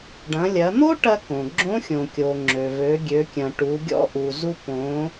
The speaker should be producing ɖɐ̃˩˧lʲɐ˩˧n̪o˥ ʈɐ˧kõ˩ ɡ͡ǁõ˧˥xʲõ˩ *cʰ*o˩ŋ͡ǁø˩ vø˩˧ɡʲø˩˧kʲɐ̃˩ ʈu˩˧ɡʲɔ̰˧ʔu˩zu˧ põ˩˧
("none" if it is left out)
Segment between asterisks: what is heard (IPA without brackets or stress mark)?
kʲ